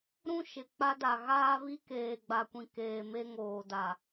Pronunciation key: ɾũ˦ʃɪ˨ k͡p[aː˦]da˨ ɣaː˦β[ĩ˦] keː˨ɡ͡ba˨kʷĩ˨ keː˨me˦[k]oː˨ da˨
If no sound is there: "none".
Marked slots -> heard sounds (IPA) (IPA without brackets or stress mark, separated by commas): a˦, i˦, ŋ